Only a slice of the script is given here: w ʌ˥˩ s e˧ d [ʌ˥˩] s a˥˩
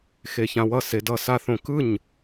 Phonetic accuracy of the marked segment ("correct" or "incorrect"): correct